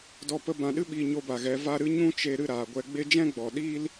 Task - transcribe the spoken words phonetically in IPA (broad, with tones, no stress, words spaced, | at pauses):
dɔ˧pə˧ bã˨ɗɨ˦ɓiː˨ ɲo˧ba˨ ɣɛ˨˦ va˧ ɾɨ˦ɲũ˦t͡ʃe˧ ɾɨ˦˨ɾaː˨ɡʷɛ˧ɡ͡be˦ d͡ʒɛ̃˦ɡ͡bɔ˨ ɗiː˦l